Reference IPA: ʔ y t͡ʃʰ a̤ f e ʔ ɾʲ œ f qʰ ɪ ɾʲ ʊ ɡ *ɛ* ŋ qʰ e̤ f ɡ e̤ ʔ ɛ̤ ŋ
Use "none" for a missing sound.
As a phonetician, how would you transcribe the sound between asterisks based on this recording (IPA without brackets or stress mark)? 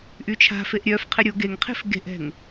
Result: e